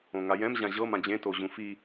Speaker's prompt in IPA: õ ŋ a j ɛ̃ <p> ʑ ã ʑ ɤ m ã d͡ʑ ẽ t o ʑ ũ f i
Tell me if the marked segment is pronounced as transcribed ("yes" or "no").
no